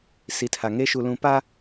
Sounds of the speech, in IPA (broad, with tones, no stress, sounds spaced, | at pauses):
s i˨ tʰ a˨ ŋ eː˦ ʃ u˨ l ũ˨ p a˦